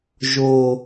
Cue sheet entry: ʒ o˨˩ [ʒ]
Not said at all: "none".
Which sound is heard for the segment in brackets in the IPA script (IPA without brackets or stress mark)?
none